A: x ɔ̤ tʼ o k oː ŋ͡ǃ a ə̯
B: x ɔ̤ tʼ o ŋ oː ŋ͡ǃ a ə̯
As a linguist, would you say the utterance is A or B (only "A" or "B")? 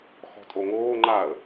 B